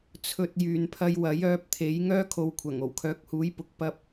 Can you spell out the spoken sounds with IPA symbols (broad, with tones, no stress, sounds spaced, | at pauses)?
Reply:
t͡sʰ ɵ˧ t̚ j yː˨ n pʰ ɐ˧ j w ɐ˨˥ j œː˨˥ p̚ t̪ʰ e˨˥ j ŋ œː˥ kʰ o˨ w kʷʰ ɐ˨˩ ŋ o˨˩ w kʰ œː˨˥ k̚ h uː˨˥ j p ʊ˨ k̚ p ɐ˧ p̚